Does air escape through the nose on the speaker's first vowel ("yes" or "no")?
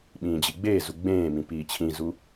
yes